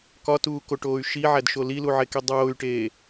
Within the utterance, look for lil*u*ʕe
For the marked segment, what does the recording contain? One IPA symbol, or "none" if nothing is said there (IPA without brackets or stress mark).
u